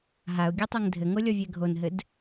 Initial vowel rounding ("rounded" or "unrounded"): unrounded